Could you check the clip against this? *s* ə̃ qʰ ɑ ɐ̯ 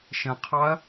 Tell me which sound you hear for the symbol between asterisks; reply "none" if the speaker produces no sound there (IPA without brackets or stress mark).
ʃ